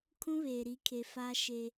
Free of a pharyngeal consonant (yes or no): yes